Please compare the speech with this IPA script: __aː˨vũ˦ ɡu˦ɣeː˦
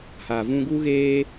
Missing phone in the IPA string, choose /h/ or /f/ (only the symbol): h